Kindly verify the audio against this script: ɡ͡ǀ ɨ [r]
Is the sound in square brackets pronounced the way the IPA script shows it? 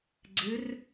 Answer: yes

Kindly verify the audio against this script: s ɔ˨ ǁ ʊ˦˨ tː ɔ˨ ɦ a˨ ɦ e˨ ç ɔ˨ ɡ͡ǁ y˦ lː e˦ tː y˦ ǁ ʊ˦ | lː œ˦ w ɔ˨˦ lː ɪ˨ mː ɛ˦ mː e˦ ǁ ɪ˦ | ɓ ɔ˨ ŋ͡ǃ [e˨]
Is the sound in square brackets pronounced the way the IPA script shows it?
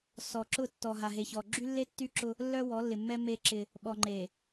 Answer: yes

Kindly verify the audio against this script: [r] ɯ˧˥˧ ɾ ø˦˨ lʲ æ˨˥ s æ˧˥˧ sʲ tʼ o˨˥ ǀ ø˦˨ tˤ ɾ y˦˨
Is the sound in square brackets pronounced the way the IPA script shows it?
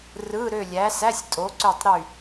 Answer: yes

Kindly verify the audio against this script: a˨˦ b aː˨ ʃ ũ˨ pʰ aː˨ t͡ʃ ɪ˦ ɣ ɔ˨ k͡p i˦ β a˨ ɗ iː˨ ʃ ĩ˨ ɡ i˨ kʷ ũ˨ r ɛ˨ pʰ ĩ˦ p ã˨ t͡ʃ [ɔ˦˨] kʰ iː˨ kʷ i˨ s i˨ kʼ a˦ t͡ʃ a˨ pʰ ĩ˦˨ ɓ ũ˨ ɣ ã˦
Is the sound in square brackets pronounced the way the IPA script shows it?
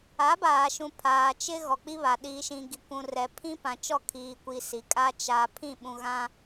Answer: yes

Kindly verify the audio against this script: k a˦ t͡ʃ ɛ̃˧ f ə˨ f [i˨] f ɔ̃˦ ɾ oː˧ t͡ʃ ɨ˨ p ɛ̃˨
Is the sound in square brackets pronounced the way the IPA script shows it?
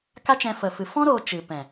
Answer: no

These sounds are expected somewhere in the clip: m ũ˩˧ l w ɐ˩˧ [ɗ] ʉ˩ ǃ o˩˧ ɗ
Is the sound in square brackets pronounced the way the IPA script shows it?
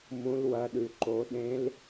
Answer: yes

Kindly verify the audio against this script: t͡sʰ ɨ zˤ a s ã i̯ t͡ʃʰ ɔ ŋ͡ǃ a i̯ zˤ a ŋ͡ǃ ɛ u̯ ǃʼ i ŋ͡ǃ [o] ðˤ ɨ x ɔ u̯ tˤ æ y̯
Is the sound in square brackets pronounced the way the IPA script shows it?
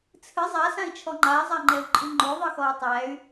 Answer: yes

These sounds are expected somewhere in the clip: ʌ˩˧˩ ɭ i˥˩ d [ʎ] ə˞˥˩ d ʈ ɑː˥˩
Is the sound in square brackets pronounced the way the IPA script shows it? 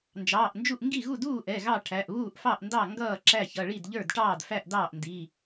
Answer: yes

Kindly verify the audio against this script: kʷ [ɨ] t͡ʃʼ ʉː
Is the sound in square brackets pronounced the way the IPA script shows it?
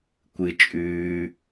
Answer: yes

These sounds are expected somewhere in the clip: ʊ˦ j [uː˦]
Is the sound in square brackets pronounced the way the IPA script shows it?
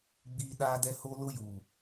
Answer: no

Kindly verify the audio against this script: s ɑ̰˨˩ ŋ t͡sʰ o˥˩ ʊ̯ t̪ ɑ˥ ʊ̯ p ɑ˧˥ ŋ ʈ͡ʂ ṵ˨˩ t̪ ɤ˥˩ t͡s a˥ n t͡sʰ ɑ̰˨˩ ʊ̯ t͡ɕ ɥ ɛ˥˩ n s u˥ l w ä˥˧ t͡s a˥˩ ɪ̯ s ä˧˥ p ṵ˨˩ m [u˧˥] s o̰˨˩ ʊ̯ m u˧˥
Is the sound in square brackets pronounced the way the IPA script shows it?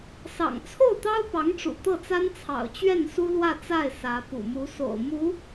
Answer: yes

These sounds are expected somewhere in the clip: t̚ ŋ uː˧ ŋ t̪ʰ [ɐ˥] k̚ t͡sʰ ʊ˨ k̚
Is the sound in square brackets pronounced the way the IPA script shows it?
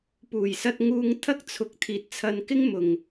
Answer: yes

